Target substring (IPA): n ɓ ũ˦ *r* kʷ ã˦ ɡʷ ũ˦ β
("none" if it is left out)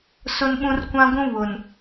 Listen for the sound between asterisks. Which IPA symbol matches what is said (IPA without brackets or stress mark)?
r